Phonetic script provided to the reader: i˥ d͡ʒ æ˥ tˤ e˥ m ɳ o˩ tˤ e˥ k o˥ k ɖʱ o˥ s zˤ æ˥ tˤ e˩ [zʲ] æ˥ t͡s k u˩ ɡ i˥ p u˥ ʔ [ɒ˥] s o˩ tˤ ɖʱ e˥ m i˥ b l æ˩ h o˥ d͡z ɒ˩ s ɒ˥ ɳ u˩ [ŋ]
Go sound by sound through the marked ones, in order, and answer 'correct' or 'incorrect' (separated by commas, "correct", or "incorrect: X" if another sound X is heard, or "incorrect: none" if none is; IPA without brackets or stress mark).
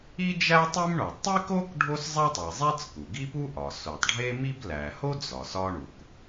incorrect: zˤ, incorrect: ɒ˩, incorrect: k